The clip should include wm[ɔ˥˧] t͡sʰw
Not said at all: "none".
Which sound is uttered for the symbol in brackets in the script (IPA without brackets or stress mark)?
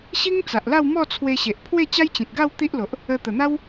ɔ˥˧